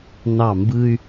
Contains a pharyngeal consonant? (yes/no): no